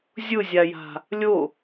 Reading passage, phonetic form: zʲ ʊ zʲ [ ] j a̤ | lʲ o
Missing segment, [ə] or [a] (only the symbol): a